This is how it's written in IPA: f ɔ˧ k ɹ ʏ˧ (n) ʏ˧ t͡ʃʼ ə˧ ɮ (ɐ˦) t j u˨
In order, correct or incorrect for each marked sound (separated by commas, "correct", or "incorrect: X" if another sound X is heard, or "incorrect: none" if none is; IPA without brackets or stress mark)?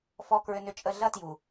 correct, correct